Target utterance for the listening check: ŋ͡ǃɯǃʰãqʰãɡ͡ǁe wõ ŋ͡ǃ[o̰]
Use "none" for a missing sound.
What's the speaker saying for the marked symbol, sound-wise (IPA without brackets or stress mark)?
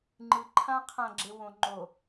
o